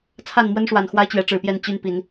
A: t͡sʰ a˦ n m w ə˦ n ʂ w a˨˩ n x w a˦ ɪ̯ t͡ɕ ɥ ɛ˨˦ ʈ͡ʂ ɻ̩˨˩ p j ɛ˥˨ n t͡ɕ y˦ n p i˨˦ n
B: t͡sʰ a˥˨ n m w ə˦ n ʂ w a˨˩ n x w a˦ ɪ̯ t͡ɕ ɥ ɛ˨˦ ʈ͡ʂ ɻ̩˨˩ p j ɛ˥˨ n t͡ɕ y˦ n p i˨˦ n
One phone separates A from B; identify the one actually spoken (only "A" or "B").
B